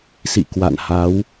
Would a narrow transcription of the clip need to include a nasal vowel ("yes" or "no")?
no